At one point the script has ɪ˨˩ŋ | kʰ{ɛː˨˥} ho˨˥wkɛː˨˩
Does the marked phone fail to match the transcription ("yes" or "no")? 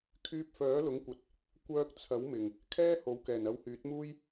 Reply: yes